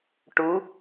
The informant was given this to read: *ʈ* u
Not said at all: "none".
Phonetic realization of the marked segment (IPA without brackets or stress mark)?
ʈ